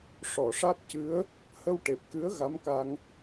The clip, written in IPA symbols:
ʂ ɔ˨˩˨ ʂ a˦˥ t̚ c ɨ˧˥ ə̯ | h ə˧ w ʈ e˨˩ p̚ k ɨ˧˥ ə̯ ɣ a˧˥ m k a˧ ŋ

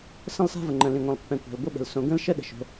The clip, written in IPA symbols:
s ə̃˥ lˠ s a̤˥ v ə˩ ŋ͡ǃ ə̃˩ l ĩ˩ ŋʷ ɛ̃˩ lˠ pː ɛ̃˩ kʷ a̤˩ l ɡʷ ə˥ ɓ ə̤˩ l s õ˩ ɡ ə̃˥ l ʃ ə˥ ɗ ə̤˩ ʃ o̤˩

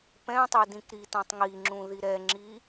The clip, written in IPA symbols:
p ɛ̃ tˤ i d ĩ k ɾ i t ã tˤ ŋ i ŋ͡ǁ ũ ð i ɾ ɛ ŋ͡ǁ i

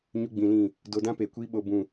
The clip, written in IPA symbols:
ɲ u˦ ɡ͡b ĩ˧ l ĩ˦˨ | d o˧ d ã˦ p e˨ kʷ iː˦ ɓ o˧ b ũ˦˨

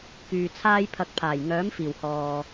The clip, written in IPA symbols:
k yː˨ t͡sʰ aː˥ j pʰ ɐ˧ k̚ pʰ aː˨˩ j ŋ œː˨˥ m f iː˨˩ w h ɔː˨

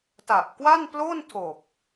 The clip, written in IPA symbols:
t a˨˩ ʔ k w a˥˩ n p l o˥˩ n tʰ o˨˩ k̚

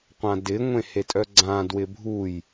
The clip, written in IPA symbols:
qʷ ã d ɪ ŋʷ ẽ h e tʼ œ ɡ͡ǀ ã d w ɪ bʱ u j

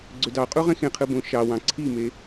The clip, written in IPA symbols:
ɡ͡ǀ ø d ɑ qʼ u ʁ ẽ x ẽ qʰ ɯ b õ ʃ ɑ w ɑ̃ ǀʰ i m e

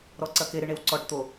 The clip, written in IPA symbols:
ɾ ɔ ǀ ɐ k e ɾ ɨ ɳ e w ǀ ɔ ʈ t̪ o

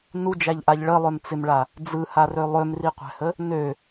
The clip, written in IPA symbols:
n u d͡ʒ æ ʎ ʔ a ʎ ɭ ə lˠ ø m t͡s ɪ m ɭ a | d͡z ɯ h a r ø lˠ ø m r i qʷ æ̤ h ə | n ø

